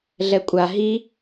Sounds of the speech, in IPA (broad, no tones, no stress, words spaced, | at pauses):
ɮɛkʷʼa ɦi